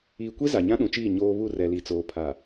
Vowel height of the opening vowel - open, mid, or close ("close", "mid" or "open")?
close